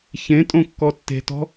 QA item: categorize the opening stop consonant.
ejective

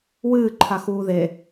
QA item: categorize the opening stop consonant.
click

